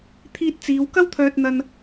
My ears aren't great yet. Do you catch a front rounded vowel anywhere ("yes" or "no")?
yes